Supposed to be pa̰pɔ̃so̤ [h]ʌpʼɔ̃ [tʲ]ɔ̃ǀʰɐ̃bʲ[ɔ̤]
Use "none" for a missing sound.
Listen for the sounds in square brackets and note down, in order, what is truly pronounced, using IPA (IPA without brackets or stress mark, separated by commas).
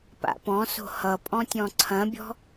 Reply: h, tʲ, ɔ̤